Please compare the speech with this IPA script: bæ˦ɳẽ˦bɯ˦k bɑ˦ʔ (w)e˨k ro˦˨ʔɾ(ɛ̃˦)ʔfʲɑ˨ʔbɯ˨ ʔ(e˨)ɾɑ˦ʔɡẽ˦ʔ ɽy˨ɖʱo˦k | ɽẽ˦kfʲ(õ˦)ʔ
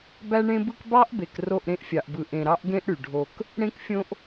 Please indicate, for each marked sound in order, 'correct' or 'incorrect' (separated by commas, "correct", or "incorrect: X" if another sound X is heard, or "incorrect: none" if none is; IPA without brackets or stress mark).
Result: incorrect: b, incorrect: ẽ˦, incorrect: ẽ˨, correct